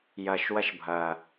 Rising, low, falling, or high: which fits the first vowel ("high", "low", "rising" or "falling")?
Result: low